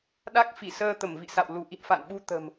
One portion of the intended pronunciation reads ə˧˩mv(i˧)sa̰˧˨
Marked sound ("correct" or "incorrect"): incorrect